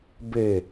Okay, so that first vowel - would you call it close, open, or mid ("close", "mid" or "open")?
mid